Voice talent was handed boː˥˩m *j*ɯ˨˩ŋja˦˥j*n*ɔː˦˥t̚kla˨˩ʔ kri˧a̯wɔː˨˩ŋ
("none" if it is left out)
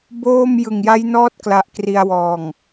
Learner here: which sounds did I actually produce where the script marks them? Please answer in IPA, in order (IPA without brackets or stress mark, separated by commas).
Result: j, n